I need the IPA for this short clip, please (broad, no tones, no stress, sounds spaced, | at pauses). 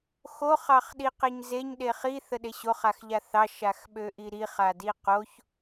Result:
x o χ ɑ χ ɗ i q e ɲ z e ɲ ɗ e χ i θ ə ɗ e ɕ o χ a x ʎ a θ ɑ ʃ a x ɓ ø ʔ i ɾ i χ a d i q o ç